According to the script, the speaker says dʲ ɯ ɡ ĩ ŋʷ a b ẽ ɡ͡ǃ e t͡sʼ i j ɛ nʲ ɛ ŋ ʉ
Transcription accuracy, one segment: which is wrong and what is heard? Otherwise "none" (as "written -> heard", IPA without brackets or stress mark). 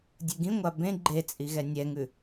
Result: j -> ɣ